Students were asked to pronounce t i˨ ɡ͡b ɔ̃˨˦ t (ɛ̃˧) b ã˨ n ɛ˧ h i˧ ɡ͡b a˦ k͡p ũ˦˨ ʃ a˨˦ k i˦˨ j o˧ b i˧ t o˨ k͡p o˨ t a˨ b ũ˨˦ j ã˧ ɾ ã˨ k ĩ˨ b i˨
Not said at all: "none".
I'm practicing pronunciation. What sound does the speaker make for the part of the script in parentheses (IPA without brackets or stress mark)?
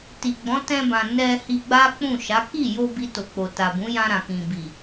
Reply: ɛ̃˧